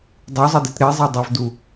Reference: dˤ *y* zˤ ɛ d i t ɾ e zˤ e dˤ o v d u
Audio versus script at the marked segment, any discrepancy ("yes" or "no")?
yes